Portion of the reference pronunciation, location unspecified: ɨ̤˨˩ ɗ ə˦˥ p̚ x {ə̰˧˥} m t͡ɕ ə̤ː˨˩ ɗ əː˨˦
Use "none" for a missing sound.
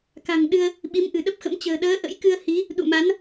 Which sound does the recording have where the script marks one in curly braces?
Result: ə̰˧˥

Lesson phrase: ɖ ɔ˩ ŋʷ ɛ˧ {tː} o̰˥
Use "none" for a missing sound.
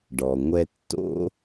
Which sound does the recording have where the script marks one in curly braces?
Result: tː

